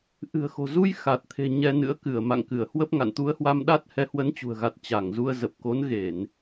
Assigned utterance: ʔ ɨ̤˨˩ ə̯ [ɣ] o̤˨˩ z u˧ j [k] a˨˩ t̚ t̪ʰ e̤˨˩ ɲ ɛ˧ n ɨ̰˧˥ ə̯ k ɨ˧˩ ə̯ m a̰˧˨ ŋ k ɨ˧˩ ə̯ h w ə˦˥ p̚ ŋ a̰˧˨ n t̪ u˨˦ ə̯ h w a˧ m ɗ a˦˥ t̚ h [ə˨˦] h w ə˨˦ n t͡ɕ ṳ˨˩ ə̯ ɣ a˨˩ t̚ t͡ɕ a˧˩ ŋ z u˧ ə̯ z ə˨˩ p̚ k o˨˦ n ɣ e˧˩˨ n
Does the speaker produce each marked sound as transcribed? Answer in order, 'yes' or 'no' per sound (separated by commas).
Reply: no, no, no